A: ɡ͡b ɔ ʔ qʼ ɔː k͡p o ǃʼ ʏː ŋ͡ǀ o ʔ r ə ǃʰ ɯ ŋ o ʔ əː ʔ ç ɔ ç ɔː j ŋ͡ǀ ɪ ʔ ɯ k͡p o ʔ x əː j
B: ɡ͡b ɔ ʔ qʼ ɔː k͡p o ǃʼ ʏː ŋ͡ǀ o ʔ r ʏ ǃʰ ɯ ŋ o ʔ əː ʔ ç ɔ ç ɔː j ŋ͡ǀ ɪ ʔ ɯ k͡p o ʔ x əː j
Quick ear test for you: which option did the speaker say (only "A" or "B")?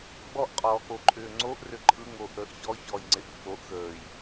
B